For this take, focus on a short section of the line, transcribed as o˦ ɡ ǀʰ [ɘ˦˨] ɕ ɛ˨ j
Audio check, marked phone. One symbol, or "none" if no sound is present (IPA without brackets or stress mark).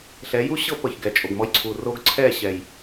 ɛ˦˨